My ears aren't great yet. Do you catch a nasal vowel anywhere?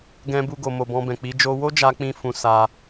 yes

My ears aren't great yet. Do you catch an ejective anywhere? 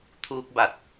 no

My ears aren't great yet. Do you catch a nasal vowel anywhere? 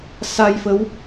no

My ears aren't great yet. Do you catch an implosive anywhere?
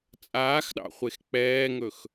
yes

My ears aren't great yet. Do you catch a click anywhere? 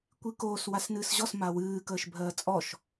no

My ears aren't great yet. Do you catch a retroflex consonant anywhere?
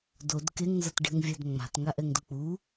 yes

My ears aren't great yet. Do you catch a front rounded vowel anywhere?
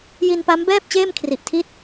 no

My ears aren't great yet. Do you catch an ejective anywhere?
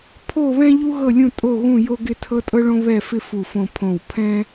yes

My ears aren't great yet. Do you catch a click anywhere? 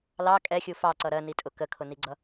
yes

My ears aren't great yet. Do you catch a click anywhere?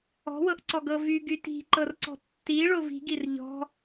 yes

